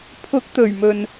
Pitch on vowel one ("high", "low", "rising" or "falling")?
rising